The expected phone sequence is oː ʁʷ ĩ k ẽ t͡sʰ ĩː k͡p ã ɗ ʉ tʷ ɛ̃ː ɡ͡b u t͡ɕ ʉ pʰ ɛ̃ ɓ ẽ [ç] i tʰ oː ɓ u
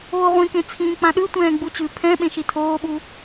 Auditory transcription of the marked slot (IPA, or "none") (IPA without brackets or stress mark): ʃ